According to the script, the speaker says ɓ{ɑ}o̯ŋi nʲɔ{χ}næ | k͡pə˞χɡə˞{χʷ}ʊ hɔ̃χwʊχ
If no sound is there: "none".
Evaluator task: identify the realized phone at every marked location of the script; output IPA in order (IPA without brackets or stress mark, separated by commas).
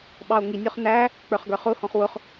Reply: ɑ, χ, χ